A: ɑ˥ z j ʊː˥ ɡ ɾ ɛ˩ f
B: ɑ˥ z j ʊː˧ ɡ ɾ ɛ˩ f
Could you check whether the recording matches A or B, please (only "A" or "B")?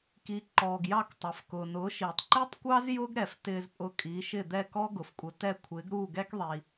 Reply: A